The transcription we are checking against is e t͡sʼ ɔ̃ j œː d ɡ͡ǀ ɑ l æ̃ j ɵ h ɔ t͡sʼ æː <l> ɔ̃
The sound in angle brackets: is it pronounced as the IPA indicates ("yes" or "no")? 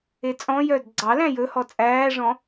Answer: no